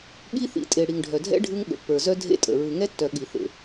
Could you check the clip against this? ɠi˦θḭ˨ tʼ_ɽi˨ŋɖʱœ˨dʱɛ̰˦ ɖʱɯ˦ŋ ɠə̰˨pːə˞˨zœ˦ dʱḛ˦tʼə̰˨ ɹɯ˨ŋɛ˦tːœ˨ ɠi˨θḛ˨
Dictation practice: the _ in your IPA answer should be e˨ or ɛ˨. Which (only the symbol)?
e˨